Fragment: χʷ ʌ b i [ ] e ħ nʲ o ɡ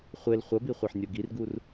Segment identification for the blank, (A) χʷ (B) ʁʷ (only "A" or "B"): A